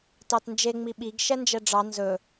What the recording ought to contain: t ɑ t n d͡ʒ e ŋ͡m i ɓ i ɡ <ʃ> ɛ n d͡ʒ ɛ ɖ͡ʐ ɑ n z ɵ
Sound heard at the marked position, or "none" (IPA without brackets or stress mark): ʃ